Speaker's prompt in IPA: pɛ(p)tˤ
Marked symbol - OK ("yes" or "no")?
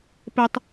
no